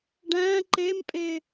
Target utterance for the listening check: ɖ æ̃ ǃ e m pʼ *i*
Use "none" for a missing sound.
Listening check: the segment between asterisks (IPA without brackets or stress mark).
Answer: e